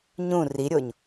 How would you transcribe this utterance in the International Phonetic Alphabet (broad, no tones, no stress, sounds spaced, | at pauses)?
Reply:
ɲ ũ r i ɾʲ o ɲ